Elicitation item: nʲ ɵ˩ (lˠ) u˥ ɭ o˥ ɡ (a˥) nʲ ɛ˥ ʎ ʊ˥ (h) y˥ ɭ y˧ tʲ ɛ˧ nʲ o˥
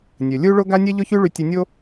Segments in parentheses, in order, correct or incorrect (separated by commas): incorrect, correct, incorrect